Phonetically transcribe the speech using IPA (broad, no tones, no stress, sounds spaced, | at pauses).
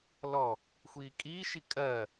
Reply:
l ɔ | xʷ iː kʼ iː ʃ i kʼ ɜ